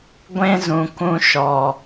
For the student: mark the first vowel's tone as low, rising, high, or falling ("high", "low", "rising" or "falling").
high